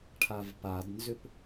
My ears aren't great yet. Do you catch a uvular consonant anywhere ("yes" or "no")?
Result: no